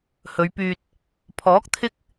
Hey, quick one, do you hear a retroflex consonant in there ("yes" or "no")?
no